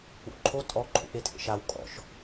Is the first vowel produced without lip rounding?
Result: no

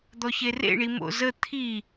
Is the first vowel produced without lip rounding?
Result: no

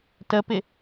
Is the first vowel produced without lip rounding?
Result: yes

